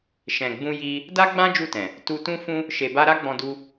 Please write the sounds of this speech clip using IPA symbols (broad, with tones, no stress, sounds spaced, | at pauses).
ʃ ɛ̃˨ ɡ͡b ũ˧ j i˧ | d a˦ ɡ͡b ã˦ d͡ʒ u˦˨ t ɛ̃˨ | t u˧ t ũ˦ f ũ˦ | ʃ e˧ b a˦ ɾ a˦ ɡ͡b ɔ̃˧ d u˧